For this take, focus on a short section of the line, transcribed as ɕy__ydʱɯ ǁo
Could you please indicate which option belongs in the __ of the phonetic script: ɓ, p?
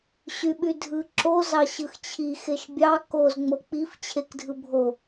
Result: ɓ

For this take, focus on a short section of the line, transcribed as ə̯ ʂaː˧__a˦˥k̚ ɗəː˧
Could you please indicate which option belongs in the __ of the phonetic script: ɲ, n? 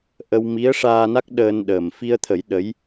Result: n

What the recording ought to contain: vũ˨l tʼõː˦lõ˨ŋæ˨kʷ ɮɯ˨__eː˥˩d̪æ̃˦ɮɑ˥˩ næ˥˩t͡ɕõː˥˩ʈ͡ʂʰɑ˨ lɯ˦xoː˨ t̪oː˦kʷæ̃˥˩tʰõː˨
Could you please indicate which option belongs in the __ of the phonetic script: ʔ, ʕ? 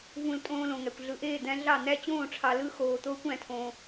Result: ʔ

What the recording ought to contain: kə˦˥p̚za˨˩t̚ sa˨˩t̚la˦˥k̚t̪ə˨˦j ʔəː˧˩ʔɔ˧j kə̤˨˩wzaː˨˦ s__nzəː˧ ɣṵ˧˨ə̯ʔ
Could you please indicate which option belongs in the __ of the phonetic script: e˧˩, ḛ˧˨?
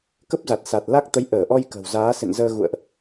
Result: ḛ˧˨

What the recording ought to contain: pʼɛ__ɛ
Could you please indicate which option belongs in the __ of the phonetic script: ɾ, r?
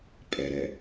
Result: ɾ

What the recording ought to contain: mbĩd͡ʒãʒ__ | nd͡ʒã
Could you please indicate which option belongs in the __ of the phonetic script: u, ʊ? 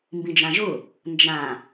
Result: ʊ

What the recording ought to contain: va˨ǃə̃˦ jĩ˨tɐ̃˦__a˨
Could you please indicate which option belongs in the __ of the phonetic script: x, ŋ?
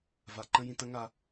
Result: ŋ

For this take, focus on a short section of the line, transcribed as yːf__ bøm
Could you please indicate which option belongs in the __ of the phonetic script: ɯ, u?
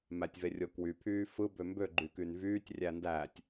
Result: ɯ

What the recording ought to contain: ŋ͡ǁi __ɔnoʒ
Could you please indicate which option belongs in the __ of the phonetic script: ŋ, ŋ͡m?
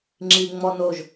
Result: ŋ͡m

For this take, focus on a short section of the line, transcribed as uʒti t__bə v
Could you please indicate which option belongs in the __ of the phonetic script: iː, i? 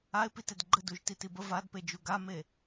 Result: i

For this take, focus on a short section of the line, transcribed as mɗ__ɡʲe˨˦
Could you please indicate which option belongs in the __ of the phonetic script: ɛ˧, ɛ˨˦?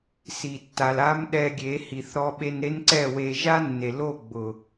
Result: ɛ˧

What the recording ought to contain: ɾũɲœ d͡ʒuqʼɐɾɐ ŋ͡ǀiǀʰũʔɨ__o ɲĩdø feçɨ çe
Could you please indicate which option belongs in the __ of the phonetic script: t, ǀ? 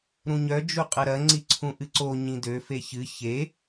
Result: ǀ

